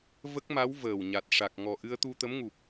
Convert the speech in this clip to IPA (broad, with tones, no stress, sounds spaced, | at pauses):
v ə˦˥ k̚ m a˧˥ w v əː˨˩ w ɲ a˨˩ t̚ ʂ a˨˩ k̚ ŋ ɔ˨˩ ʔ ɨ˧ ə̯ t̪ u˧ t̪ ə˧˥ m ŋ u˨˩ p̚